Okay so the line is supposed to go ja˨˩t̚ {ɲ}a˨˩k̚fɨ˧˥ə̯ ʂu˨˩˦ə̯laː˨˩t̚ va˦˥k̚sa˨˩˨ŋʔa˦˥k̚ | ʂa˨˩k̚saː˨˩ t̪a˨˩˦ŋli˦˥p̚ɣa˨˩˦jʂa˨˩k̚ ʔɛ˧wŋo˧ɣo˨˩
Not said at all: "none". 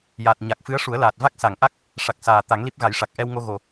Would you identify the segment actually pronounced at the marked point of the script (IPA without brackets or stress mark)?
ɲ